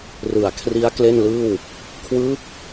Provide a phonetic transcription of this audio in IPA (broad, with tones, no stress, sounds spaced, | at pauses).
r ɯ˨˩ a̯ kʰ r i˦˥ a̯ k l e˥˩ n l ɯː˥˩ w | kʰ w ɯː˦˥ k̚